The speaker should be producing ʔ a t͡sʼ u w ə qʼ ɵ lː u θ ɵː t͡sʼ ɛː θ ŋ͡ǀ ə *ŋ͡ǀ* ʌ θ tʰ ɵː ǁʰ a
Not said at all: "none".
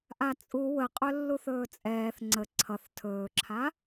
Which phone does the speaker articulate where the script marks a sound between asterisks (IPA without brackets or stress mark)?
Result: ǀʰ